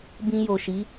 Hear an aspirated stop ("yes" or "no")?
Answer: no